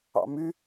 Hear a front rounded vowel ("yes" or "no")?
yes